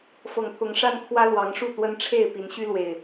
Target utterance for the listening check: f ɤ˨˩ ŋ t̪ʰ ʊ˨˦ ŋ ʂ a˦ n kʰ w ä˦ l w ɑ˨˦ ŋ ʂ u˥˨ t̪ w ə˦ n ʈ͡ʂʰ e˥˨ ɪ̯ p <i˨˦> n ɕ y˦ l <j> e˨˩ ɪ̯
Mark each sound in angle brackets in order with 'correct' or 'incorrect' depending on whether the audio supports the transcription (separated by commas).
correct, incorrect